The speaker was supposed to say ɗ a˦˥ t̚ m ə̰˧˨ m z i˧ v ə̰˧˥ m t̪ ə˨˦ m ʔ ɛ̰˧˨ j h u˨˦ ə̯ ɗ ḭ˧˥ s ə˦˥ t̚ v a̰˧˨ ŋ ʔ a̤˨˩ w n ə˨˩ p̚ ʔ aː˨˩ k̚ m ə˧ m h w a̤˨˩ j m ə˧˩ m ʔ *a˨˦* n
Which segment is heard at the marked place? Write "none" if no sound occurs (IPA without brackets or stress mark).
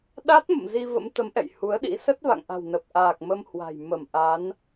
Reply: a˨˦